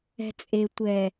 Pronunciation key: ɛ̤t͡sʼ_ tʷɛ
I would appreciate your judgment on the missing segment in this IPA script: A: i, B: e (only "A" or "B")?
B